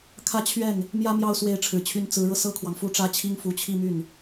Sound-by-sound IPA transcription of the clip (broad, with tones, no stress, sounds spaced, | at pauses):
kʰ ä˥˧ t͡ɕʰ ɥ ɛ˥˩ n | m j ä˥ m j ɑ˥˩ ʊ̯ s w e˧˥ ɪ̯ ʈ͡ʂʰ ɻ̩˨˩ t͡ɕʰ y˧˥ n t͡s ɹ̩˧˥ ɻ ɤ˧ s ɤ˥ kʰ w ɑ˨ ŋ f u˥ ʈ͡ʂ ä˥ t͡ɕʰ i˥ ŋ f u˧˥ t͡ɕʰ i˥˧ m y˥˩ n